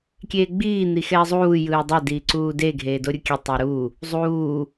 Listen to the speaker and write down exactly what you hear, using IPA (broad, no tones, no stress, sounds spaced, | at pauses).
kʲ eː ɡ͡b iː n̪ i x ɛː zˤ uː j ɯː dˤ ɛ d iː ǀ uː d e ɡʱ eː d o ɾʲ u kʲ ɛ tˤ i ɾ u | zˤ uː